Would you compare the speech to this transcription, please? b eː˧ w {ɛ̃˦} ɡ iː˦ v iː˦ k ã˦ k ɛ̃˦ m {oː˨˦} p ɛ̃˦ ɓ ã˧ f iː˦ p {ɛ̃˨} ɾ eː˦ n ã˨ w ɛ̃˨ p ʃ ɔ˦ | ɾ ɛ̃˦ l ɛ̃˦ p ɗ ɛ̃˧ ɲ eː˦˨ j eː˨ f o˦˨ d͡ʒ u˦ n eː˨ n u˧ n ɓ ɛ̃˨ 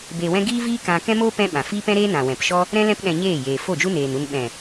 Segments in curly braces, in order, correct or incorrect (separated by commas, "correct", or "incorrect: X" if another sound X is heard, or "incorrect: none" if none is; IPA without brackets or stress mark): correct, incorrect: oː˦, incorrect: ɛ̃˦